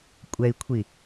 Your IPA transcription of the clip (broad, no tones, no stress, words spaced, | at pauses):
kʷʼɛi̯kʷʰi